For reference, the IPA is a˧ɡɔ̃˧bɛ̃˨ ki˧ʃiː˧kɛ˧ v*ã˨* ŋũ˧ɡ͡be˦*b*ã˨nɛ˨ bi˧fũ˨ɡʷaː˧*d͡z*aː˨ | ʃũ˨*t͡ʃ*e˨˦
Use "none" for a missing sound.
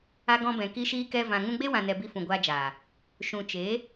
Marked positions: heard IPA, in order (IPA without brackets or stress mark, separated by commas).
ã˨, w, d͡ʒ, t͡ʃ